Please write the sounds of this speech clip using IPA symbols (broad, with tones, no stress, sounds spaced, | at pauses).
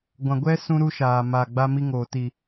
ɡʷ ã˨ ɡʷ ɛ˦ s ũ˦ ɾ u˦ ʃ aː˨ m a˨ ɡ͡b a˦ m i˦ ŋ oː˨ t i˨